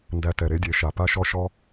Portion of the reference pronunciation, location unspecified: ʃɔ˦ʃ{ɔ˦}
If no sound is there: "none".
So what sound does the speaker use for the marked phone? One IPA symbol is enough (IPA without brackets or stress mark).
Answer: ɔ˦